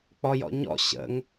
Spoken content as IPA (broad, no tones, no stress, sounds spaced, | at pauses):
k͡p ɔ j ɔ̰ ɲ ɔ̰ ɕ ə̰ ŋ